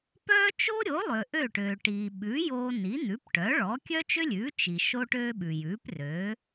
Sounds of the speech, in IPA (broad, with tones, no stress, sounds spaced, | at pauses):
p œː˥ t͡ʃ o˥ ɾʲ o˩˥ lˠ ø˩ ʔ ø˥˩ ʈ øː˩ ʈ iː˩ ɓ ʉ˩˥ j oː˧ n i˩˥ n̪ ʉ˩˥ p ʈ œ˩˥ ɭ ɔ˩˥ kʲ œ˥ t͡ʃ ø˥ lʲ ʉː˩˥ t͡ʃ i˩ ʃ oː˥ ʈ øː˥ ɓ ʉ˩ j ʉː˩˥ p r øː˩˥